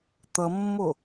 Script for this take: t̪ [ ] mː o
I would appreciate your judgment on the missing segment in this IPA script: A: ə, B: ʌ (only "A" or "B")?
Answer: B